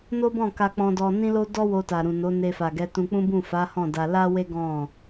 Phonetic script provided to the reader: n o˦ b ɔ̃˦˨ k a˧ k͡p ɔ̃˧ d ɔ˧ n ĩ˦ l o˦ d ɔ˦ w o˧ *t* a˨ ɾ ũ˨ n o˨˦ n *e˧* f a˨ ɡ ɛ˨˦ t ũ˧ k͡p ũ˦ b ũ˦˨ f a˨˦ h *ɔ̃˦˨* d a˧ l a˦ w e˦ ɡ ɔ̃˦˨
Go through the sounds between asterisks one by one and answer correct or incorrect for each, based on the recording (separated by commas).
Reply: correct, correct, correct